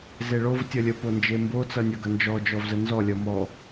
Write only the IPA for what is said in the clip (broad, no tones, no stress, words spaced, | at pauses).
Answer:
zeɭov tʲʌlʲə pond͡ʒembo t͡sʌnʲʌɡʌnd͡ʒɔ d͡ʒɔvzənzɔ lʲʌmɔ